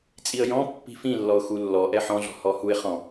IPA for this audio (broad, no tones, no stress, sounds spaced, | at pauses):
t͡sʼ i ə̯ j ɔ̃ pː i̤ f ĩ lː ɔ ʊ̯ x u lː ɔ ʔ ɛ ħ ɔ̃ ɮ ɔ̤ h ɔ h u ɪ̯ χ ɔ̃